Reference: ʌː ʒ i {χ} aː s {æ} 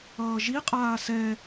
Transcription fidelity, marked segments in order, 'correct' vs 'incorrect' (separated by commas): incorrect, incorrect